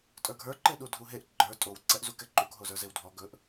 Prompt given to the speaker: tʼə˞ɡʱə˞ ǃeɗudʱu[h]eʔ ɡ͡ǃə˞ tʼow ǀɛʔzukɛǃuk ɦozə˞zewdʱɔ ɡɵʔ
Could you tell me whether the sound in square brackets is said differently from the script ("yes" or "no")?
yes